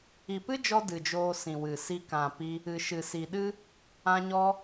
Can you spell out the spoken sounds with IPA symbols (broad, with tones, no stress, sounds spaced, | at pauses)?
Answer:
i˨ p ɨ˦ d͡ʒ ɔ˧ d ɨ˨ d͡ʒ oː˧ s ĩ˨ w ɨ˨ s i˦ k ã˨ p i˧ | ɨ˨ ʃ ɨ˨ s i˨ ɗ ɨ˦ | ã˧ ɲ ɔ˧